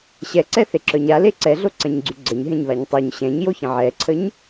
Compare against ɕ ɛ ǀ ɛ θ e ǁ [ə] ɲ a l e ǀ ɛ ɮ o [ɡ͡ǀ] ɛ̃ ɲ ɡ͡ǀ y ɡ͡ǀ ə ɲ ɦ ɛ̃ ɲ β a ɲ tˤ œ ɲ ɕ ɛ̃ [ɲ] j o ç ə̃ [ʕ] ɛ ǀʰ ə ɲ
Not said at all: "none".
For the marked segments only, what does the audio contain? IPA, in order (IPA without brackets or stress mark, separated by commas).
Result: œ, ǀ, ɲ, ʕ